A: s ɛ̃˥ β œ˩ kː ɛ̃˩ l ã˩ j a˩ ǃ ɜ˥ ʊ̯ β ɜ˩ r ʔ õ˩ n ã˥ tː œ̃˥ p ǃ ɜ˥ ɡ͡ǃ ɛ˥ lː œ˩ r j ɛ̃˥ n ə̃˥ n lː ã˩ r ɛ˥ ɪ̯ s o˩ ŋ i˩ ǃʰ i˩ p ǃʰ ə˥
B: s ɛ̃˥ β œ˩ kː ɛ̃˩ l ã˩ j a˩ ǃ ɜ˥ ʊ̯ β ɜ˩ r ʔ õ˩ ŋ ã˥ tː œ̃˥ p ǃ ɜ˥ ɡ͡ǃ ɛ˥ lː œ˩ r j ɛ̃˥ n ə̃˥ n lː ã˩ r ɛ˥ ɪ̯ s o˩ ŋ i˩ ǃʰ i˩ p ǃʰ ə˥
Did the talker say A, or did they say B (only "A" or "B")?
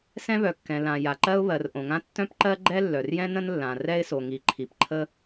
B